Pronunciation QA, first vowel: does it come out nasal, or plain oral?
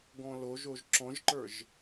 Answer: nasal